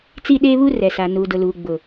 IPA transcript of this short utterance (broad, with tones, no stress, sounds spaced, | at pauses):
t͡s i˦ ɗ eː˦ β u˦ r ɛ˨ s a˨ n uː˨ d ʊ˨ l uː˨ ɡ͡b ʊ˨